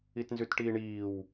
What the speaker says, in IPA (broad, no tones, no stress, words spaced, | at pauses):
itnzʉtʈiːɳiːw